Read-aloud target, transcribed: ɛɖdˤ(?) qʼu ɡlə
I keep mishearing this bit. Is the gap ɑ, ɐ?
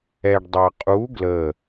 ɑ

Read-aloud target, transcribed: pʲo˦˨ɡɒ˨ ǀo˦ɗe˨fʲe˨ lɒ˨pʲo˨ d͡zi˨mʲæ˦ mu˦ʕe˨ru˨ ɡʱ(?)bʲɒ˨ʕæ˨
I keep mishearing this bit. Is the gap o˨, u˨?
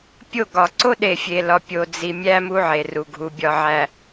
u˨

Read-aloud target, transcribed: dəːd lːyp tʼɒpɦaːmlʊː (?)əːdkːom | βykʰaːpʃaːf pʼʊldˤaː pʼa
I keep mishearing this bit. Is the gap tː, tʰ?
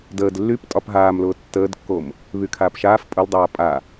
tː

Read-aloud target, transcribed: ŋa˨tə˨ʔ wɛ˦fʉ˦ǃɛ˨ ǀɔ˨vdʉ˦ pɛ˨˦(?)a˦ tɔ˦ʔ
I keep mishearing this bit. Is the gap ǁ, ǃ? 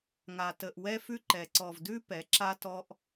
ǁ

